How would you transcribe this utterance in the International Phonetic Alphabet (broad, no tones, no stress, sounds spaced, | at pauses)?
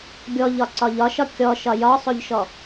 ɡʲ ɔ ʎ ɒ ǀ ɒ ʎ ɒ ʃ ɒ kʲ ɔ ʃ ɒ j ɒ sˤ o ʎ ʃ ɔ